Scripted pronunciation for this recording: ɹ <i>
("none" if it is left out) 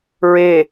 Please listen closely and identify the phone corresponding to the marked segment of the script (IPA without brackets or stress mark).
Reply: e